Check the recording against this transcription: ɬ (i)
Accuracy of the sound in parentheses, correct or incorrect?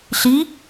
correct